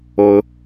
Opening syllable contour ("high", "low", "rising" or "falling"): high